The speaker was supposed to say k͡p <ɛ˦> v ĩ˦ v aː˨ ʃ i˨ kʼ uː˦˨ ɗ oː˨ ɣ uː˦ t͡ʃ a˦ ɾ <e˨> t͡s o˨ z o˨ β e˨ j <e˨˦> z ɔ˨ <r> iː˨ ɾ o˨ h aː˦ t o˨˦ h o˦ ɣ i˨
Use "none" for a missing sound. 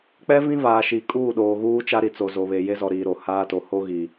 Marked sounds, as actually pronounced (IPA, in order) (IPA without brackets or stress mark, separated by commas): ɛ˦, i˨, e˦, ɾ